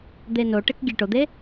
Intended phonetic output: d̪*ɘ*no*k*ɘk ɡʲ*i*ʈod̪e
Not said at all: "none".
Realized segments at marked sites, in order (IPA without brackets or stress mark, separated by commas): e, ʈ, e